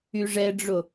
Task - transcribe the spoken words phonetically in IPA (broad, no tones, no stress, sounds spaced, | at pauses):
y ʐ ɛ ɖ͡ʐ o